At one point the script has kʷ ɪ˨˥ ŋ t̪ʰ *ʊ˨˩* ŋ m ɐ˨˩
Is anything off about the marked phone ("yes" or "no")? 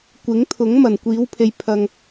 yes